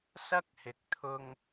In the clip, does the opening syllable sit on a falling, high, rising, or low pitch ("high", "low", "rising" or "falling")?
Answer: high